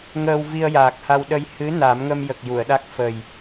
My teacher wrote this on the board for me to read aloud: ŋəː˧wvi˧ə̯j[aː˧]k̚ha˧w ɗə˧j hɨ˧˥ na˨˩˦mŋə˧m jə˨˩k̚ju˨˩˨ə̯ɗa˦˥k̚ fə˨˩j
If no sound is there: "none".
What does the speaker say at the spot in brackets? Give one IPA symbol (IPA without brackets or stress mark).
aː˨˩